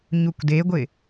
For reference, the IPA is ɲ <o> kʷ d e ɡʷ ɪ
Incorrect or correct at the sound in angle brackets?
incorrect: u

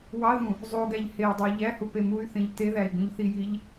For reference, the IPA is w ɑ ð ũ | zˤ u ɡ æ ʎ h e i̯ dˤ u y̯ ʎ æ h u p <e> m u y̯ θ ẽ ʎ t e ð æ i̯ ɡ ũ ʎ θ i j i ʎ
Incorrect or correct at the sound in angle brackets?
correct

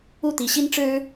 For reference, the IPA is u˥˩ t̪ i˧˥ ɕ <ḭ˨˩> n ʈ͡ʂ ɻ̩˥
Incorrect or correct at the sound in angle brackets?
incorrect: i˥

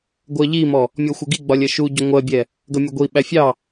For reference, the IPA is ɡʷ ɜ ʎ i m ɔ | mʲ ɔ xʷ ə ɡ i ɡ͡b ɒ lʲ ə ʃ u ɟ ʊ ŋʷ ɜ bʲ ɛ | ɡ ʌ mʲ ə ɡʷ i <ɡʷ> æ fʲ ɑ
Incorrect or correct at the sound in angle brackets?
incorrect: ɓ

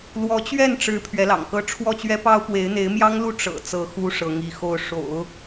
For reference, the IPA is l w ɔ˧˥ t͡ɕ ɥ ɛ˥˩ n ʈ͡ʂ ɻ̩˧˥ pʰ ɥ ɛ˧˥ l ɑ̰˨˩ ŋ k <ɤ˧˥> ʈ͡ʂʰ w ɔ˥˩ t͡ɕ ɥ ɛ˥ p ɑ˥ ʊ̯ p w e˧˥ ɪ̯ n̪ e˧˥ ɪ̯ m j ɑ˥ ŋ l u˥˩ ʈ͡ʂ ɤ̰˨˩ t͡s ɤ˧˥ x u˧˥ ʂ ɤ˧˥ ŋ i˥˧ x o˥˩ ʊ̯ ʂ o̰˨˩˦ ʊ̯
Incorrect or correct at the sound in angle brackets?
incorrect: ɤ˥˧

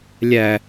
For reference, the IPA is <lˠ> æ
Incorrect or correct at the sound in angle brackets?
incorrect: lʲ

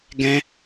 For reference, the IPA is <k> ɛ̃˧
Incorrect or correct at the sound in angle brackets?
incorrect: ɡ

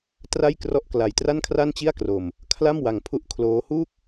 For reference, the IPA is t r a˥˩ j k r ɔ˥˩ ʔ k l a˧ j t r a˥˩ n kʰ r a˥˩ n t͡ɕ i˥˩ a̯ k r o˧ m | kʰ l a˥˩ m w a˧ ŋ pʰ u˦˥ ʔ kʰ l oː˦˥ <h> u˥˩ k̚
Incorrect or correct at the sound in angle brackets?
correct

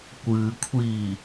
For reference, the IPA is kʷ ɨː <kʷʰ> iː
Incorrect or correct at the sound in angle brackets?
correct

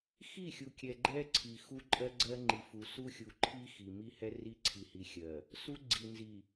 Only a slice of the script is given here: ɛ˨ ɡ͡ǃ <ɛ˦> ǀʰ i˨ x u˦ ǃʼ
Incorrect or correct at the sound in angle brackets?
correct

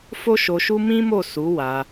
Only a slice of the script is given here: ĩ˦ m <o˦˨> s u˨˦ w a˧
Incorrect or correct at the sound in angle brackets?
correct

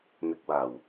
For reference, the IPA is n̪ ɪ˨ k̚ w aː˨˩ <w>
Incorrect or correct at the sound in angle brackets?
correct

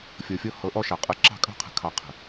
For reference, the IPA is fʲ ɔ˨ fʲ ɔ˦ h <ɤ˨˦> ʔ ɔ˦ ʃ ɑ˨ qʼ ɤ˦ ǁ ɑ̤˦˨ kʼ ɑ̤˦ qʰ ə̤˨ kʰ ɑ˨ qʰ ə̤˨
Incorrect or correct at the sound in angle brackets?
correct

